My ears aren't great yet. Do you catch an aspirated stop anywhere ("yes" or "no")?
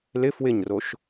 no